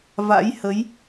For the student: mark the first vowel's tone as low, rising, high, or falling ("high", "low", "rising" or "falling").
rising